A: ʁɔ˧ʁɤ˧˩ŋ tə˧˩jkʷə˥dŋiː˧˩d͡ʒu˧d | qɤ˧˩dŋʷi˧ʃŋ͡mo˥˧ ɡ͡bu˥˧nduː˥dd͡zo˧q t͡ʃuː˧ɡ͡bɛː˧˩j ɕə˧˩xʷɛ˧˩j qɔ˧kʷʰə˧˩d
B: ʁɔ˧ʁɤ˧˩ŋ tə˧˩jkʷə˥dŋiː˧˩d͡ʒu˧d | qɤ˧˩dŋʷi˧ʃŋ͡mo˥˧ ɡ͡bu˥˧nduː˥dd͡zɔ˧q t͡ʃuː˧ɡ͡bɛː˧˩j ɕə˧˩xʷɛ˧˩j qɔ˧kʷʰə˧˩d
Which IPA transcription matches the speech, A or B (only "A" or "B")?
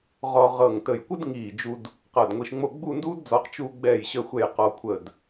B